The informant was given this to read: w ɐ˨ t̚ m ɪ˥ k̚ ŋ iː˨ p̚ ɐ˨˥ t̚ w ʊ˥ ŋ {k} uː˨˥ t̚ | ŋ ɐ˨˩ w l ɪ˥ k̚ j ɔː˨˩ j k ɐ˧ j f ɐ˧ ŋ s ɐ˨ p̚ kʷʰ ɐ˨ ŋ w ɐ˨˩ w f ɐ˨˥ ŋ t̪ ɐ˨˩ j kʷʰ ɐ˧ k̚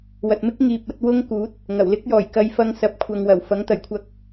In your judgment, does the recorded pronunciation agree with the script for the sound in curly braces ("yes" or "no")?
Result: yes